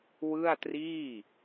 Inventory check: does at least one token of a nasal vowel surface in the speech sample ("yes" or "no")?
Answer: no